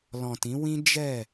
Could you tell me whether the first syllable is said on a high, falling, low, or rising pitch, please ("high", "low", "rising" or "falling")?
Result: low